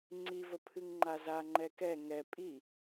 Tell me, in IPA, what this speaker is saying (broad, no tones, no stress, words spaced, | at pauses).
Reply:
ŋ͡ǀivə pʰɨŋŋ͡ǃazaŋ͡ǃɛ kɛ ŋɛ pʼi